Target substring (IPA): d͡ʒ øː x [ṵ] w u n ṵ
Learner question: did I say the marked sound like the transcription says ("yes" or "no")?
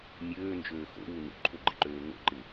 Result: no